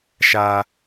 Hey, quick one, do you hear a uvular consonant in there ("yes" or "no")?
no